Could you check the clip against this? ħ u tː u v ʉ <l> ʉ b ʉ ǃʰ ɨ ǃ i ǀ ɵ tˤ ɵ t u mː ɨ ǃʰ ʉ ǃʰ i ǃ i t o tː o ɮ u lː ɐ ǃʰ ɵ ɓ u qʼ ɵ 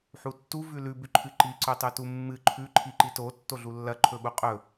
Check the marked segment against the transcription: correct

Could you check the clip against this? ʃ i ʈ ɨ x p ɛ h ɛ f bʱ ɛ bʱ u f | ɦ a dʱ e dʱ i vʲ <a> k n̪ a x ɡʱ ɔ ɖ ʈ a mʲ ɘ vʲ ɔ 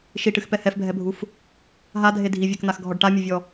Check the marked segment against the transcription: correct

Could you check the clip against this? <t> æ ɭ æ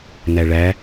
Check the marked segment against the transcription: incorrect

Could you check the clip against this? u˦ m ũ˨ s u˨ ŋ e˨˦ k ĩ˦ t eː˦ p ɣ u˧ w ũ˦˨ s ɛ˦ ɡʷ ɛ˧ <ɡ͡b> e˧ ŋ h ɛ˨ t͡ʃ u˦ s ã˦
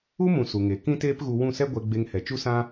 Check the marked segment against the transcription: correct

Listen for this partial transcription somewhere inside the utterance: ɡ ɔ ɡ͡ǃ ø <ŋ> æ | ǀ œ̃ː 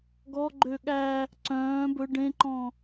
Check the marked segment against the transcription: incorrect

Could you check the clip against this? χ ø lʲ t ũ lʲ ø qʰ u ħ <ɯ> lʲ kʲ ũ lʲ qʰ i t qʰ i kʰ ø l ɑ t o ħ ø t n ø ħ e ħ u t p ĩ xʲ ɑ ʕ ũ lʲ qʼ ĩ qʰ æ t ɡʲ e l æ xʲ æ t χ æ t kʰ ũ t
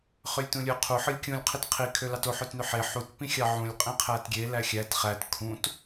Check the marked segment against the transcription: correct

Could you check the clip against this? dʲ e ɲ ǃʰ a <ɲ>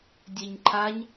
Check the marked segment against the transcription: correct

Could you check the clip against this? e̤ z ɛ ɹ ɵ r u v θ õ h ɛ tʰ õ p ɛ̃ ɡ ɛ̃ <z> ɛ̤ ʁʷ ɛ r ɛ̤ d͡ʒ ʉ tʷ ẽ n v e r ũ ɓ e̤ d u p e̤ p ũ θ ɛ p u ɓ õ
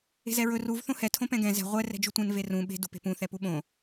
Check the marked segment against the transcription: correct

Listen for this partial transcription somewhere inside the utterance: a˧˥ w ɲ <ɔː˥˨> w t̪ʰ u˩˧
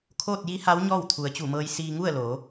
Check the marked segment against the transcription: correct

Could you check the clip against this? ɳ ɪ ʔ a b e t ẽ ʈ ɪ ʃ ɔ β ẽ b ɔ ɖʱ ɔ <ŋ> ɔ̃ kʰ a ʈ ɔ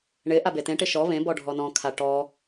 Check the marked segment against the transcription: incorrect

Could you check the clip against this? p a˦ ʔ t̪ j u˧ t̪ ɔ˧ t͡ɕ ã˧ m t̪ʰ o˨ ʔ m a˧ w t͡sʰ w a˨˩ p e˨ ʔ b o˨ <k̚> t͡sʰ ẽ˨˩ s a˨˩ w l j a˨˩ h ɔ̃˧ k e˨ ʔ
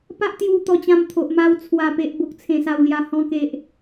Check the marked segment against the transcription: correct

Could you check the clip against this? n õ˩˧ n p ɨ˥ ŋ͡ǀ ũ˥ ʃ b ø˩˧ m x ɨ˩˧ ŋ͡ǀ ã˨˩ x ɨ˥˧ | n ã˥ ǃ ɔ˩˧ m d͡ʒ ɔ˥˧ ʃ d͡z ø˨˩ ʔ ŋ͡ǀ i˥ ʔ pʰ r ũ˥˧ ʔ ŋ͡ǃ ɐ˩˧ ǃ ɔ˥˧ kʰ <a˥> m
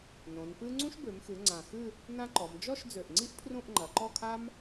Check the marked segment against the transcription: correct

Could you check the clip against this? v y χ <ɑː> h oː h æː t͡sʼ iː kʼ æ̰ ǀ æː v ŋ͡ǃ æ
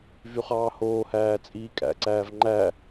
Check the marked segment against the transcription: correct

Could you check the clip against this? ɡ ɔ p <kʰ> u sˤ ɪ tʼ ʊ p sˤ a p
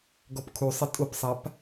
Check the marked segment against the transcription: correct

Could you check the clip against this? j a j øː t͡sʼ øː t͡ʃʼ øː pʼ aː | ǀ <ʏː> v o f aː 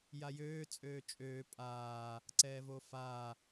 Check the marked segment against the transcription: incorrect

